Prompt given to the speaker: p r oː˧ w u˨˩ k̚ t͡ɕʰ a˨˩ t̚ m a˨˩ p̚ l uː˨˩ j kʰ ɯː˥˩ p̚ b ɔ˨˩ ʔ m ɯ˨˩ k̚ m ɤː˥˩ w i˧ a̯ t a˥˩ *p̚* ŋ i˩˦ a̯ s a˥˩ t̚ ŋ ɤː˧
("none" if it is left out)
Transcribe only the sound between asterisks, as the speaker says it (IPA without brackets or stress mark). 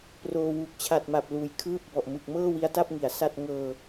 p̚